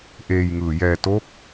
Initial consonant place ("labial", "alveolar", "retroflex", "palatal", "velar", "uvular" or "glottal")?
glottal